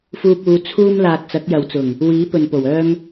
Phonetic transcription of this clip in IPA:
f uː˧ p̚ uː˨˧ t͡sʰ uː˧ m l aː˨ t̚ t͡s ɐ˨˥ k̚ j ɐ˨ w t͡s ʊ˨˩ ŋ | w iː˨˥ p ɵ˨ n p o˨˩ w œː˥ ŋ

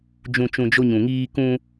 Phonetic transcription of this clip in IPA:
d͡ʒ ũ˨ t͡ʃ ũ˨ d͡ʒ o˧ ɲ ũ˨ ŋ iː˧ k ũ˧

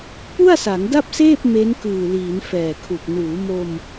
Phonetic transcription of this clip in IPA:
p u˥˩ a̯ s a˩˦ ŋ d a˥˩ p̚ s eː˥˩ p̚ m e˦˥ n k ɯː˨˩ l iː˩˦ n f ɛː˨˩ kʰ u˨˩ k̚ n uː˩˦ m o˧ m

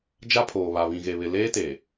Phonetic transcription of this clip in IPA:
d͡ʒ a˦ pʰ oː˨ β a˨ β ĩ˨ ɣ e˨ β ɪ˨ l eː˦ t eː˨

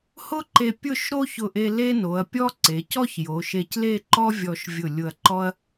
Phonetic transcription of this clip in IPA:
h ʊ˥ ǃ e˧ pʲ ʊ˥˧ ʃ ɾ o˥ ç ʊ˧˩ ʔ e˧ l e˥ n o˩˧ ɐ̯ pʲ ɔ˥ ǀ e˩˧ c ɔ˥ ç j o˩˧ ʃ e˧ c l e˥˧ ǃ ɔ˥ vʲ ɔ˧ ʃ vʲ ʊ˧˩ lʲ ʊ˧ ɐ̯ ǃ ɔ˥ ɐ̯

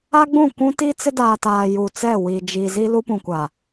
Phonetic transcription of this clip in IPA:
a˦ ɡ͡b ũ˦˨ kʷ ũ˦ t i˦ t͡s ɪ˦ d aː˨ t aː˨ j u˨ t͡s ɛ˦˨ w i˨ d͡ʒ i˨ z i˦ l u˦ p ũ˨ kʷ a˨

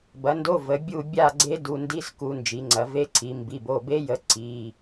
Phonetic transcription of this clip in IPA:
b ɐ˩˥ n d o˧˥˧ v ə˩˧ bʲ u˦˨ bʲ a˦˨ ɡ͡ǀ e˦˥ d u˩˧˩ n d i˧˥˧ s k u˩˧ n d͡ʒ i˩˧ ŋ͡ǀ ɐ˩˧ v e˦˥ ǀʰ i˩˧ m b i˩˧˩ b o˩˧˩ b e˦˥ j ə˩˥ ǀ i˩˧˩

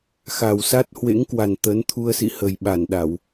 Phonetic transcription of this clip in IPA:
x a˨˩ w s a˦˥ t̚ h w ḛ˧˥ ŋ k w a˨˩ n t̪ ə˨˦ n t̪ʰ u˧ ə̯ s ḭ˧˨ h ə˨˩ j ɓ a˧˩ n ɗ a˧˩˨ w

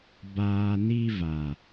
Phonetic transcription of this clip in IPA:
b aː˨ n i˧ v a˨

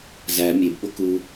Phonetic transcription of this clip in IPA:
z æ mʲ e b ɓ o k u

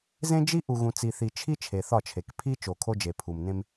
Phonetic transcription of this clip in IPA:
z ẽ˦ d͡ʒ i˦ ʔ u˨ ɣ ũ˨ t͡s i˨ θ i˨ t͡ʃʰ i˦ t͡ʃʰ e˨ θ ɒ˦˨ t͡ʃʰ e˨ k pʰ i˦ t͡ʃ o˨ kʰ o˦ d͡ʒ e˨ pʰ u˨ m n ẽ˦ m

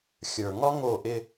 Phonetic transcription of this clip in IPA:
xʲ ə˞˨ ŋ ɒ˦ ŋ o˦˨ ʔ ɪ˦

